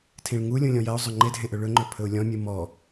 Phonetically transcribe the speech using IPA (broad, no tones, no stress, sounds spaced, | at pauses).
tʰ ĩ ɭ ŋ u lʲ ũ lʲ ɔ̃ j ɜ ʊ̯ zˤ ɵ ŋ͡ǃ e dʱ ẽ ʔ ɵ ɭ ɵ ŋ͡ǃ ɵ pʰ ɵ ʊ̯ lʲ ɔ̃ mʲ ɨ m ɔ